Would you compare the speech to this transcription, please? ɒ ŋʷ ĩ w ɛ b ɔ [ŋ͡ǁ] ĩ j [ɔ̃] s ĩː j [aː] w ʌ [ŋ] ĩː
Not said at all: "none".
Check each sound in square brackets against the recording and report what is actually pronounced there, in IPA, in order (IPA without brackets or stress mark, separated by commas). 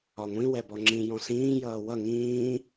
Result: ŋ͡ǁ, ɔ̃, ʌː, ŋ